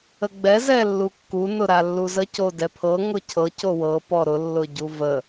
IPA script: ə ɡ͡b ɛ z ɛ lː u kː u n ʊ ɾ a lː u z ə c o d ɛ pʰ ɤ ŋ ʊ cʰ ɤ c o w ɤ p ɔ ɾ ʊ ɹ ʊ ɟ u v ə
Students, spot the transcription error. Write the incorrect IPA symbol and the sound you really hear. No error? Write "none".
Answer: ɹ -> lː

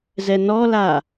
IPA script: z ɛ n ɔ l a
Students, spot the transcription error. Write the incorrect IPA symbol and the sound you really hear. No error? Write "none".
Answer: none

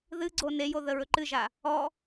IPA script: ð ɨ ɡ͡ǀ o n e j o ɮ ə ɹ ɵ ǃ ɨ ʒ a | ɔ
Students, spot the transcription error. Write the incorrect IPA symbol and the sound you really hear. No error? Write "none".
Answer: ɮ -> ð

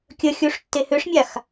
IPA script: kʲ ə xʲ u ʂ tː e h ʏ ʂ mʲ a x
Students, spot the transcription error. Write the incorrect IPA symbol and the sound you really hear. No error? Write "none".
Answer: none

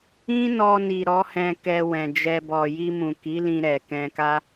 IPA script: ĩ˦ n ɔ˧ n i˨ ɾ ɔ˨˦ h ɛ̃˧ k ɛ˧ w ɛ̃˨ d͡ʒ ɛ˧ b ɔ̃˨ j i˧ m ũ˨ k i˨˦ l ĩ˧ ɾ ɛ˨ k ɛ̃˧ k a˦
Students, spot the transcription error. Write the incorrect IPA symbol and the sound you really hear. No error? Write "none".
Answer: ɔ̃˨ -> ɔ˨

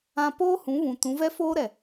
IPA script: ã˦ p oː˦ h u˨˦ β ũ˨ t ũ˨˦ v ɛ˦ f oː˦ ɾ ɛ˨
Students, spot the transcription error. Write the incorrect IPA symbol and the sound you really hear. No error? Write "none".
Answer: u˨˦ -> ũ˨˦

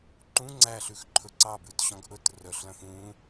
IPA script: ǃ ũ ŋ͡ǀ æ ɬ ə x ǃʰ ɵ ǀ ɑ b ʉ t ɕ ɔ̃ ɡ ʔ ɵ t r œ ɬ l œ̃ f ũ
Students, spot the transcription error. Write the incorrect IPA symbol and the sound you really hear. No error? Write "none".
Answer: ə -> ʉ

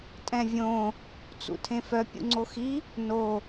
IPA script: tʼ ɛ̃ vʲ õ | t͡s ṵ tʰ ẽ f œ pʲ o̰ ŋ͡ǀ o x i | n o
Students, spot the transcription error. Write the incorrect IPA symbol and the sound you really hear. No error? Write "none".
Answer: o̰ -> ṵ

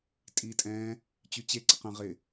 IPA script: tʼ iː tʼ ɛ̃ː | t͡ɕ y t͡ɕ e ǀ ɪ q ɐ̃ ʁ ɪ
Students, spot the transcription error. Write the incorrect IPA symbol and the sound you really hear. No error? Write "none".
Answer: none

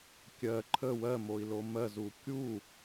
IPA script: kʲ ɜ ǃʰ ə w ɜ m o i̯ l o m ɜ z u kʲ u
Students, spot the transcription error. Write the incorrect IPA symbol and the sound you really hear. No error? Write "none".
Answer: none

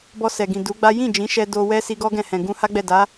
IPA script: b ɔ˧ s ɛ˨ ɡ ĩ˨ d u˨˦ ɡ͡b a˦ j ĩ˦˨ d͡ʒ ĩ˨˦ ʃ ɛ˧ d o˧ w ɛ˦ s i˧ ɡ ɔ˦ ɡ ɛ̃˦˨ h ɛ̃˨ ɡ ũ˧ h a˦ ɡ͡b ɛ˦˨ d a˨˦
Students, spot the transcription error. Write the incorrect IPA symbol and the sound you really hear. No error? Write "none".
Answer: none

